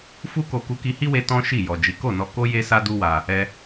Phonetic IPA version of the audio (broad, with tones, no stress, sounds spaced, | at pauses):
f u˦ k o˧ k u˧ k i˧ h i˦ w e˧ t ɔ̃˦ ʃ i˦˨ j ɔ˨ d͡ʒ i˨˦ k o˦˨ n ɔ˧ k o˦ j e˦ s a˦ d u˦ w a˧ | ɛ˧